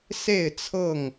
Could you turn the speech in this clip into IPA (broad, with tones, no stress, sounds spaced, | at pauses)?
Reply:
s e˥˨ ɪ̯ t͡sʰ ɤ˥˨ ŋ